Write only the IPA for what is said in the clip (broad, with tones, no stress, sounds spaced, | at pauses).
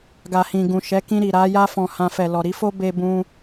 ɡ a˨ h ĩ˨ ɡ ũ˨ ʃ ɛ˨˦ k ĩ˧ ɾ i˨ ɾ a˨˦ j a˦ f ɔ̃˧ h ã˧ f ɛ˨ l ɔ˨ ɾ i˨˦ f o˦ b e˦ b ũ˦